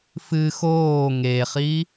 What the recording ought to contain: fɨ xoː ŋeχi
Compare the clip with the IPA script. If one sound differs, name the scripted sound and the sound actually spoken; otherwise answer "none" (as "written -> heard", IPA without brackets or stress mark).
none